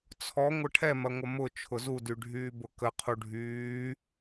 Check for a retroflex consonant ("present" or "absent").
present